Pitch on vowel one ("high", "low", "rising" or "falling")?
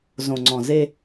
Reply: low